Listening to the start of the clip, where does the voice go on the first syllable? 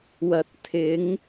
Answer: rising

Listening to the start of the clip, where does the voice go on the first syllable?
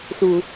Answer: low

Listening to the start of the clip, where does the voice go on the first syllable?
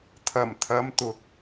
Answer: low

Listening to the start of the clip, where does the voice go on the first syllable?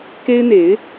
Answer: high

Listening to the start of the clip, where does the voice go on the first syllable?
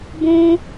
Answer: high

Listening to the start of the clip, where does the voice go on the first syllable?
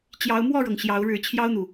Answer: rising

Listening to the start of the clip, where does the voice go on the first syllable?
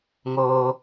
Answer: high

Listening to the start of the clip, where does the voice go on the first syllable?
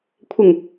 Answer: low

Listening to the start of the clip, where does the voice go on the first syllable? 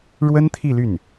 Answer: high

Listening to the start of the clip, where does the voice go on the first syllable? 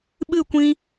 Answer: falling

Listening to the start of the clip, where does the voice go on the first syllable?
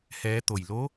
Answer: rising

